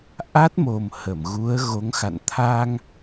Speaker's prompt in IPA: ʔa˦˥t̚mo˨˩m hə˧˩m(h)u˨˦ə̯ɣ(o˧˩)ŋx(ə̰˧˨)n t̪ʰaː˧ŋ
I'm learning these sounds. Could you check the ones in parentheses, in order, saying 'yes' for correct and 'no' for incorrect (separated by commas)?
no, no, no